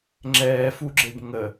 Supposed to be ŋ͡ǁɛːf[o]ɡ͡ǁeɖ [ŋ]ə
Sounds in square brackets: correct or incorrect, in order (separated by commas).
incorrect, correct